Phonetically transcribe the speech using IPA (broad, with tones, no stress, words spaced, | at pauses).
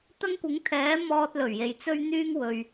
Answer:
t̪ɐ˥ŋkʷɪ˨˥ŋt̪ʰɛː˨˥ mɔː˧t̚lɵ˨˩ɥje˨j t͡sɵ˥ɥn̪yː˥ŋwɵ˨ɥ